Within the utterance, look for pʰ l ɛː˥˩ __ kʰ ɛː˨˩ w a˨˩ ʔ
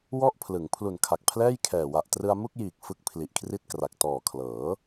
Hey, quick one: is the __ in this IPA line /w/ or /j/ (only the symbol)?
j